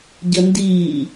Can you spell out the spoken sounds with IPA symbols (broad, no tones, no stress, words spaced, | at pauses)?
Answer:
ɟəndiː